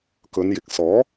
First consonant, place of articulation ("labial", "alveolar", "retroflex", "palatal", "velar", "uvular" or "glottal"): velar